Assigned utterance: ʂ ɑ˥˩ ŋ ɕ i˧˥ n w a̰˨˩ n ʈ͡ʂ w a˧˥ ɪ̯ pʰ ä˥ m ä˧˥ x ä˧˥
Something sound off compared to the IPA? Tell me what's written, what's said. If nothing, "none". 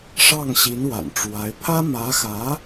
none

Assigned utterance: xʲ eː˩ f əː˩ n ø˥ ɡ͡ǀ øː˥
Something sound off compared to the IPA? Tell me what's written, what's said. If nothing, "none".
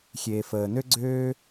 none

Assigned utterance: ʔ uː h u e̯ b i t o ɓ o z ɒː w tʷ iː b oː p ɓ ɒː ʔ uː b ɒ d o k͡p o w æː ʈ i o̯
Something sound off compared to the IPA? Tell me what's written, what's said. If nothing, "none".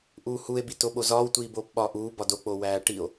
none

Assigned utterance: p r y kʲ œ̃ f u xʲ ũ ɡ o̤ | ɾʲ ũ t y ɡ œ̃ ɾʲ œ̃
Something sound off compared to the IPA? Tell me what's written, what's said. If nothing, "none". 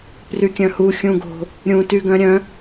f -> h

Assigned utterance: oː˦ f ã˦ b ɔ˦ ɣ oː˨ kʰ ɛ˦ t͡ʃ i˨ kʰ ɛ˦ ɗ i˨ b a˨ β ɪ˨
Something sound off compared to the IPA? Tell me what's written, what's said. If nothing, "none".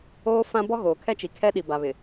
none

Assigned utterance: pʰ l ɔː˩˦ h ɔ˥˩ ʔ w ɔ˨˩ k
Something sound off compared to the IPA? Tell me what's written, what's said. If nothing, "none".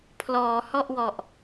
k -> ʔ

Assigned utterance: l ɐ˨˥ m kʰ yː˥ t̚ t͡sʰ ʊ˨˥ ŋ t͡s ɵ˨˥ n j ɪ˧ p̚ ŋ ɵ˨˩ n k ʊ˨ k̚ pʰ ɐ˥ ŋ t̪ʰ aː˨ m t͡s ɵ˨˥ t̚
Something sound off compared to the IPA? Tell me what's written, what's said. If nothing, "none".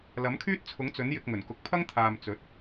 p̚ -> k̚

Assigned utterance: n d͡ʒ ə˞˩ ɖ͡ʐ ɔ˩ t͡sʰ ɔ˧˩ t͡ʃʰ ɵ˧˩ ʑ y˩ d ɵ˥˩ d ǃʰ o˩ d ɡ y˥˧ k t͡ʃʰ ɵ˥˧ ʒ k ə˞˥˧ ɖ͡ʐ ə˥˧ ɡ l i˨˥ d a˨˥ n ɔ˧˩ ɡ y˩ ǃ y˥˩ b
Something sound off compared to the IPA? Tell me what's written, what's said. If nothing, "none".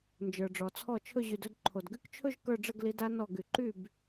none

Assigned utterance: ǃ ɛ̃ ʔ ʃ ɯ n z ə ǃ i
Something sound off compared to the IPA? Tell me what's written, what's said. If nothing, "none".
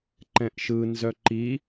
ə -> œ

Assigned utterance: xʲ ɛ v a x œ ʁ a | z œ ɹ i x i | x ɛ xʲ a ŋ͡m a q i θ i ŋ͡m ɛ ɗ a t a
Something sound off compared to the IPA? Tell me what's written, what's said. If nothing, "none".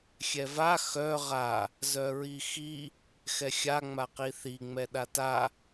none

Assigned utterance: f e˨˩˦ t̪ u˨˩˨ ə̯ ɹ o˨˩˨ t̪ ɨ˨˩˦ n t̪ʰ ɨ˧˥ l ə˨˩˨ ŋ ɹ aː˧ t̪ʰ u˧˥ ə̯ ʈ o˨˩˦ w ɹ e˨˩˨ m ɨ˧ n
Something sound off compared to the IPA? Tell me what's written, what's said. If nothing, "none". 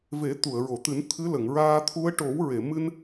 f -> v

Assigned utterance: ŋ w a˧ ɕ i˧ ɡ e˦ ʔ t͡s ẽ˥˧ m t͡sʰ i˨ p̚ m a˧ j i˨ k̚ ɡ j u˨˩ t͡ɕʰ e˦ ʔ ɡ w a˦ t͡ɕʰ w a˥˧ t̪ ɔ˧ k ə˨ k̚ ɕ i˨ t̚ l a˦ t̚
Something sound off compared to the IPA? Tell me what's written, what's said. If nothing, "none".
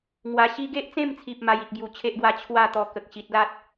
none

